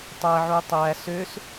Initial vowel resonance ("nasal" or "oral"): oral